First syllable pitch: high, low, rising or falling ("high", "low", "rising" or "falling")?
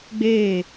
falling